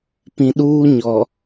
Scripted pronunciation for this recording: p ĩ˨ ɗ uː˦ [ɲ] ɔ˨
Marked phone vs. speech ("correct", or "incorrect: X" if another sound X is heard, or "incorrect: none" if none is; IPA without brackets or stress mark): correct